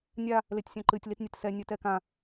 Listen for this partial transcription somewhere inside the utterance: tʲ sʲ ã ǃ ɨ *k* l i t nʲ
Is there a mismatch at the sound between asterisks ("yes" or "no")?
yes